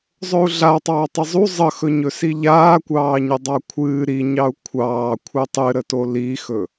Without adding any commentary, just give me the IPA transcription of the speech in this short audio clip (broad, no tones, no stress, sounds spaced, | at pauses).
zˤ ɵ u̯ ɮ a tˤ ɑː tˤ ə zˤ u zˤ ə x ɵ ɲ ɵ s i ʎ aː kʷ ɑː ɲ ə dˤ ɑ kʷʰ ɨː ɾ i ɲ ɑ u̯ kʷʰ ɑː kʷʰ ɨ tˤ ɨ ɾ ə t o l i x ɵ